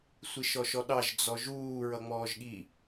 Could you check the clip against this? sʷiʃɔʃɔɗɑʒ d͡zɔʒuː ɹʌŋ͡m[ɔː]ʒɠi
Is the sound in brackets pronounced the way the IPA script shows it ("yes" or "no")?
yes